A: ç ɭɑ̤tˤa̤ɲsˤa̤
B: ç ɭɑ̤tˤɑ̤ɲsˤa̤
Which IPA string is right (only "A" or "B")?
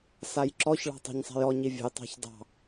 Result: B